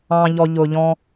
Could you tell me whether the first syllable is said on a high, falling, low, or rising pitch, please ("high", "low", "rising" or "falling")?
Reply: low